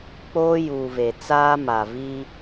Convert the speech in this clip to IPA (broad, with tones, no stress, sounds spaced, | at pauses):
k͡p oː˦ j uː˨ v e˨ t͡s aː˦ m a˨ v i˦